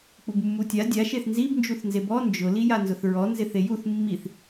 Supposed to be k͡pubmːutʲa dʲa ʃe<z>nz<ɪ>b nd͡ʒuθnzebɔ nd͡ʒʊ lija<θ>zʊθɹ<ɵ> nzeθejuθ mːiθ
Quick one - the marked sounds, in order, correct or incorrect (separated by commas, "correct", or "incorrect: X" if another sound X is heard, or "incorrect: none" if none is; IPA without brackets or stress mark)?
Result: incorrect: θ, incorrect: i, incorrect: n, incorrect: ɔ